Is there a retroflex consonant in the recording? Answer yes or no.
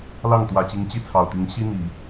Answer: no